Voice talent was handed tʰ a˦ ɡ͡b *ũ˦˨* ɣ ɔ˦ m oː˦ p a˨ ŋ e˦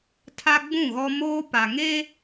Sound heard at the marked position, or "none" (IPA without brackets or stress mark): ũ˦˨